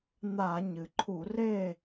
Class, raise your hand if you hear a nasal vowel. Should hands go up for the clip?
no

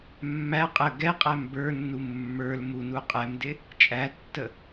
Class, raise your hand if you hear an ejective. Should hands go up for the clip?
yes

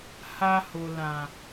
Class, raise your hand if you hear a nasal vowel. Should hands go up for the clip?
yes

